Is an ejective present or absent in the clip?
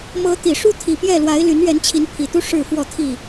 absent